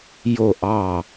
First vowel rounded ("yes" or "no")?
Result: yes